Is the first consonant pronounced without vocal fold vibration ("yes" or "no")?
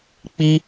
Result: yes